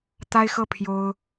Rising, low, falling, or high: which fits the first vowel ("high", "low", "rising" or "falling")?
high